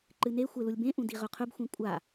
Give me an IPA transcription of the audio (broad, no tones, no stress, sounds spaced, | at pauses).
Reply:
ǃ ɨ n e xʷ e l u lʲ b ẽ ʔ ũ d i ʁ ɵ qʰ ɵ b xʷ ĩ kʷʼ a